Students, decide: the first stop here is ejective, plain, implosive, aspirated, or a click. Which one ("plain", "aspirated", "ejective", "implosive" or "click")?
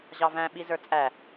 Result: implosive